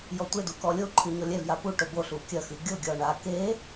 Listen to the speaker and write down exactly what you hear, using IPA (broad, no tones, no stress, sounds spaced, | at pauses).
j ɔ tʷ e d u k ɔ lʲ o ǃʰ ɨ ɲ ɔ lʲ ɛ v j a p u ʈ o b o ɬ u kʲ ɐ x ɨ ɡʲ o ɡʲ ɔ ɳ a k e